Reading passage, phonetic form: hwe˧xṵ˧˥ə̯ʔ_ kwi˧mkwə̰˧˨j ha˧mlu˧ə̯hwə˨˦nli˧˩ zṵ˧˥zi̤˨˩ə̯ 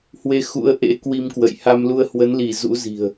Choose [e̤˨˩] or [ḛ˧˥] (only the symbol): ḛ˧˥